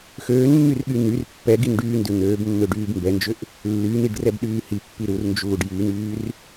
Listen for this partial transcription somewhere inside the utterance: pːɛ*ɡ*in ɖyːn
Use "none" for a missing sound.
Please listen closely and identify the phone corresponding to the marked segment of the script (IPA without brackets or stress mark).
ɡ